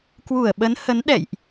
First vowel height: high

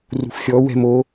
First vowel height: high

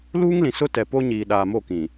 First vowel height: high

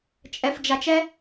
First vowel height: mid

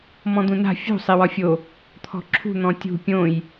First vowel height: mid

